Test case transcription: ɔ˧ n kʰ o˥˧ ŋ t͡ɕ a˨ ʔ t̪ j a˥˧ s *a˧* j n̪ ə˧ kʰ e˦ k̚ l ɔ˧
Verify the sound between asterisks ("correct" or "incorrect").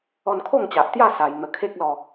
correct